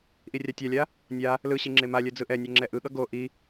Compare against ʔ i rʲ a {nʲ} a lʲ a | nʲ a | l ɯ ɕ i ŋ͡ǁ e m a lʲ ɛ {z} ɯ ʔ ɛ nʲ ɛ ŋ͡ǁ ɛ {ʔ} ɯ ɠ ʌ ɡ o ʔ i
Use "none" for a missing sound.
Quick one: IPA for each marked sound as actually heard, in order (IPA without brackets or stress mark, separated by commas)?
tʲ, d͡z, ʔ